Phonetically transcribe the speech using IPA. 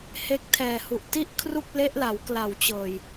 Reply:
h e˦˥ k̚ tʰ ɛː˨˩ h u˨˩ ʔ t i˥˩ ʔ kʰ r u˥˩ k̚ l e˦˥ ʔ l a˩˦ w k l a˨˩ w t͡ɕ ɤː˨˩ j

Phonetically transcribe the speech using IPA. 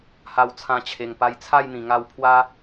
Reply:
h a˧ w t͡sʰ ã˧ t͡ɕʰ e˨˩ ŋ p a˧ j t͡sʰ a˥˧ j n̪ ĩ˨˩ ŋ a˧ w pʰ w a˦

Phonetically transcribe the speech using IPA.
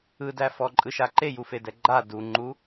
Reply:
ɯ d æ f ɔ ǃʼ ɯ ʃ a ǃ e j u f e d ɛ ɡ͡ǃ a d u ŋ͡ǃ u

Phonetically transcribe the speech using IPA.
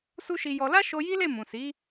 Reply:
s u˦ ʃ i˧ j ɔ˧ l a˦ ʃ o˧ j i˦ l e˦˨ m ũ˨ s i˨˦

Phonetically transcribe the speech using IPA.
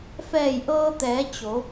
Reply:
f ɛː˧˩ j ʔ ɤː˧ t̪ ɛː˩˧ t͡ɕ o˩˧

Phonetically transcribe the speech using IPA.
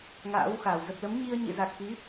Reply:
ŋ a̰ː˧˥ w x a˧˩ w z ə˨˩ p̚ l ə˨˦ m ɲ i˧ ə̯ ɲ ḭ˧˨ z a˨˩ k̚ x i˨˦

